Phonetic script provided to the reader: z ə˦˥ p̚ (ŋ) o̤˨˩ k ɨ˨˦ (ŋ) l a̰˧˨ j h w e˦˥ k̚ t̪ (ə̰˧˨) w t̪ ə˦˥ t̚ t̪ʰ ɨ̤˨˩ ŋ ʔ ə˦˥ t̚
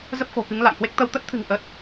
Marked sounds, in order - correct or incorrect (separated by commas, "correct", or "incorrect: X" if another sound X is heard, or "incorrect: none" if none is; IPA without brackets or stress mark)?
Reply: incorrect: x, correct, incorrect: ə˧